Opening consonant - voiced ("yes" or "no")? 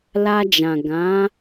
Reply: yes